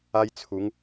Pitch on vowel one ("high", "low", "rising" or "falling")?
high